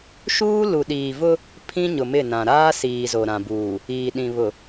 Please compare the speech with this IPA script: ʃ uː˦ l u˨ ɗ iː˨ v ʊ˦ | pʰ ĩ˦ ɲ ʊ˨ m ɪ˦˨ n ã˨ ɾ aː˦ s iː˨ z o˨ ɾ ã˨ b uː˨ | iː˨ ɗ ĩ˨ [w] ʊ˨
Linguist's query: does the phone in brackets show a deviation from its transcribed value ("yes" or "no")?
yes